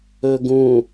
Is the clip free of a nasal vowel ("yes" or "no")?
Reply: no